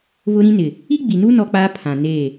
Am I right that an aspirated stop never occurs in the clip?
no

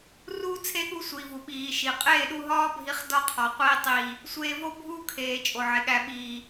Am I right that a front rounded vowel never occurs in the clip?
yes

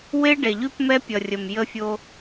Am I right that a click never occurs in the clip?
yes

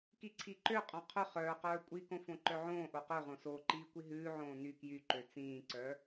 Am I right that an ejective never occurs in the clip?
no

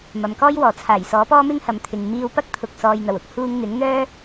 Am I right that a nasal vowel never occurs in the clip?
yes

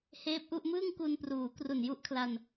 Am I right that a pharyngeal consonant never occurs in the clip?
yes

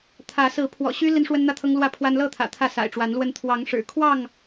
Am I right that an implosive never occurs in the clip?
yes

